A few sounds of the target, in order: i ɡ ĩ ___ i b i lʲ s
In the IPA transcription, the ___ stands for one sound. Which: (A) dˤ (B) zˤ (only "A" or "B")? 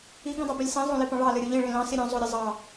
A